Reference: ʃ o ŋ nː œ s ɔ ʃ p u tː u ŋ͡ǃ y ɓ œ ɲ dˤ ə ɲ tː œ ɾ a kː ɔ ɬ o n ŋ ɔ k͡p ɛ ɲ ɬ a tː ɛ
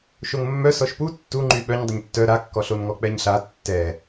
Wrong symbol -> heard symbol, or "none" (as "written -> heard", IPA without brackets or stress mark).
nː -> mː